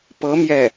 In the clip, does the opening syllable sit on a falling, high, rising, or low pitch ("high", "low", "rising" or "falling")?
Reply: rising